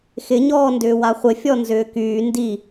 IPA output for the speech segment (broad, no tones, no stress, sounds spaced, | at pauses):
x ɪ ɲ ɔː n d ʏː w a χʷ ɪ fʲ ɔ n z ʏː k yː n d i